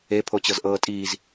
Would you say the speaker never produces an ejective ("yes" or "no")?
no